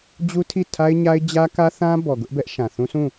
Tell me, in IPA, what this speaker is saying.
d͡ʑ u˦ tʰ i˦˨ tʰ a˦ ɪ̯ ɲ a˦ ɪ̯ d͡ʑ ä˦ k ä˦ θ ã˦ b ɔ˨ ɡ ʊ˦ ʔ b ɛ˦ ʔ ʃ ã˨ θ ũ˦ s ũ˦˨

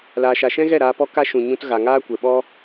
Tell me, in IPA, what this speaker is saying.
l aː˨ ʃ a˨ ʃ ɛ̃˦ ɣ ɛ˦˨ ɾ aː˧ p ɔ˦ k a˦ ʃ ũ˨ ɲ ũ˧ t ɣ a˨ ŋ aː˦ kʷ ɛ˨ ɓ ɔ˦

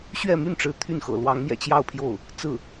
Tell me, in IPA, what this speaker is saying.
ɕ ɥ ɛ˥˧ m y˥˩ n ʈ͡ʂ ɻ̩˧˥ t̪ʰ y˥˩ n x ɤ̰˨˩ l w ɑ˧˥ ŋ m j ɛ̰˨˩ t͡ɕ j ɑ˥˧ ʊ̯ pʰ j o˥˩ ʊ̯ | t͡s ɹ̩˥˩

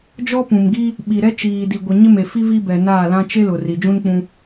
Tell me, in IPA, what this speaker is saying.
d͡ʒ ɔ˦ p ũ˨ m ɡ i˦ | ɓ i˨ ɾ ɛ˦ t͡ʃ iː˨ d i˨ ɡʷ ɪ˨ ɲ ɪ˦ m e˨ f i˦ v i˦ b ɛ˨ n aː˦˨ l ã˦ t͡ʃ e˦ l ʊ˨ r i˨ d͡ʒ ũ˦ n k͡p ũ˦

